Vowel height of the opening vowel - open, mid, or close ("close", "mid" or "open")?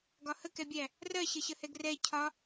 open